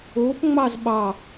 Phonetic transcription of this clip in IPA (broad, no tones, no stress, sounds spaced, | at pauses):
o p ŋ͡m ɑ z ɓ ɑ